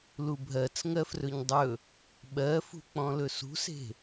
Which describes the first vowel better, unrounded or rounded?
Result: rounded